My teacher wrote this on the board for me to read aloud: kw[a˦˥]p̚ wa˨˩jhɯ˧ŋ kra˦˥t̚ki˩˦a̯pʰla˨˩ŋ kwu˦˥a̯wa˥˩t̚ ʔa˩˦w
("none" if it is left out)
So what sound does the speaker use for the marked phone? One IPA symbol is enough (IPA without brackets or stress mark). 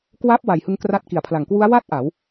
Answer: a˦˥